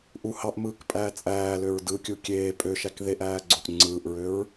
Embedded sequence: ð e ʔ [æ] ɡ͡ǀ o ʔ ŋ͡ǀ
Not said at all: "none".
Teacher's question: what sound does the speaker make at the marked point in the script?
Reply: æː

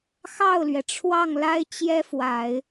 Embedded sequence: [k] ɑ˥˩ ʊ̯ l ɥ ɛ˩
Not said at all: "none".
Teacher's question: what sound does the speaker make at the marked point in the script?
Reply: x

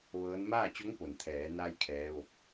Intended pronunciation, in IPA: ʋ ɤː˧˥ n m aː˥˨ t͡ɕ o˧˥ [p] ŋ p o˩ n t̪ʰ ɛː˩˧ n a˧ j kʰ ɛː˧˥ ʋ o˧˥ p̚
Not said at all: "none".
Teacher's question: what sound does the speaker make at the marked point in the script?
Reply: none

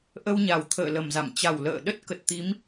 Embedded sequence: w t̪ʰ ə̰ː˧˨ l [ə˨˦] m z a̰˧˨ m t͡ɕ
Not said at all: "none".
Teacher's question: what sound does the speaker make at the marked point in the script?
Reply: ə˨˩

